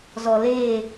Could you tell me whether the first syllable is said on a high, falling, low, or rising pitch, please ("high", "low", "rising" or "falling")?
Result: low